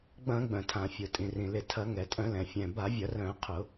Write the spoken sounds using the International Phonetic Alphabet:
ɡ͡b ɐ̃˧˩˧ ɡ͡b œ̃˩ tʰ ã˩ fʲ ʊ˩ tʼ ĩ˩ r ĩ˩ l ɪ˧˩˧ tʰ ɐ˧˩˧ ŋ ɛ˩ tʼ œ̃˧˩˧ l ɛ̃˩ fʲ ɛ̃˩ b a˧˩˧ vʲ ɐ˧˩˧ r œ̃˧˩˧ qʰ ʊ˧˩˧

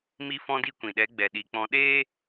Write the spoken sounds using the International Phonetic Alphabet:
m i˧ f ɔ̃˧ d i˧ kʷ ĩ˨ ɗ ɛ˨˦ ɡ͡b ɛ˨ ɗ i˨ k͡p ɔ̃˧ ɗ eː˦

